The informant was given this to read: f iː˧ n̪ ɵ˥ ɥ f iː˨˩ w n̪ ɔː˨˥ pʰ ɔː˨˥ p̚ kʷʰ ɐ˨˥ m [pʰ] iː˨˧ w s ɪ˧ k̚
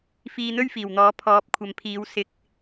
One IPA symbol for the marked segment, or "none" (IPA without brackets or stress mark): pʰ